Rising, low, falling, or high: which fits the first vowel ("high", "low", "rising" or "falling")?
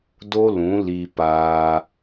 high